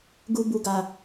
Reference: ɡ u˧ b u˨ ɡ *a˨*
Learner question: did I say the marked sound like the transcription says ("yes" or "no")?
yes